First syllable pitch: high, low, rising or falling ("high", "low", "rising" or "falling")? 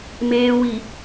low